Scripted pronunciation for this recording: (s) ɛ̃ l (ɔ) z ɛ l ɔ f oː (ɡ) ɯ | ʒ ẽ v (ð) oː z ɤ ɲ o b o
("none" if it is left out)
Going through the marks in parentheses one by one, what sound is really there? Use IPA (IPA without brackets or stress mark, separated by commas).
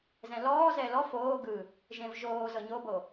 z, ɔː, ɡ, ʒ